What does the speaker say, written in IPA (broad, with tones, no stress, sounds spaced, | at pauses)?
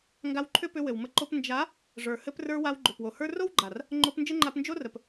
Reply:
ŋ ɡ a˧ w ǃʰ ʏ˦ p ʏ˧ w ɘ˨ w m ə˧ ǃ o˧ p n d͡ʒ a˨˦ | ʐ ə˞˨ h ɘ˧ p r ə˞˧ w a˧ w ɡ͡ǃ ʏ˨ p w o˨ h ə˞˦ r o˦ w ɡ͡ǃ a˨ r | ŋ͡ǃ o˧ p n d͡ʒ ɘ˦ ŋ͡ǃ a˧ p n d͡ʒ o˦ r ə˨ p